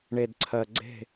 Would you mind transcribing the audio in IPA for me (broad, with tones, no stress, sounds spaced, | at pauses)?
ɳ e˨ d ǀʰ ɜ˨ ɡ͡ǀ e̤˦˨